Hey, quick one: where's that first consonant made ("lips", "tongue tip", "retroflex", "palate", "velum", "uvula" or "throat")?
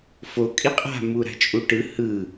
lips